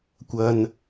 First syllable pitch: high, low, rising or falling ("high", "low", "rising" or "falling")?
low